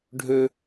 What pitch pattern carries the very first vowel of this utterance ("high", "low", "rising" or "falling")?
high